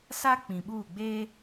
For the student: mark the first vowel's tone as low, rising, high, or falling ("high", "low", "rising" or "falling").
high